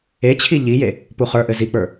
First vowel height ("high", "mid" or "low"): mid